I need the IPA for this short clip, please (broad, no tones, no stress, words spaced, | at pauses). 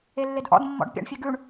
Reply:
elːedʔɔ̰d mːɔ̰ɖpʲɑ̰ɳfʲøɡʉɳ